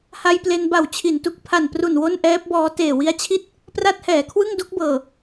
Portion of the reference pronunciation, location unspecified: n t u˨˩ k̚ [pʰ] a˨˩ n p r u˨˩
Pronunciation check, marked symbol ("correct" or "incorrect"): correct